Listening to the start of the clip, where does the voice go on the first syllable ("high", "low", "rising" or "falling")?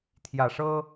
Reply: low